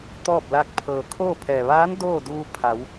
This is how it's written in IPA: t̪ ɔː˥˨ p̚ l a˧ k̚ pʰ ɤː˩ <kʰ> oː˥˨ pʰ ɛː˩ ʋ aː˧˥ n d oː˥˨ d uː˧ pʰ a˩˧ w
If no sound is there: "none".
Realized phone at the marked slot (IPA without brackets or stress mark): kʰ